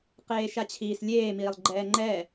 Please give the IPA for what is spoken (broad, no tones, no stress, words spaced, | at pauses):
qeːʃat͡ɕʰiːslʲeː miːlˠɡ͡ǃɛːŋ͡ǃɛ